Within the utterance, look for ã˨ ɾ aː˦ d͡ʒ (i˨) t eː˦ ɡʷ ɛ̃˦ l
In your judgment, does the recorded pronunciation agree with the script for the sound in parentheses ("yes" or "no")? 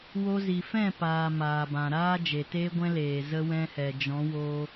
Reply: no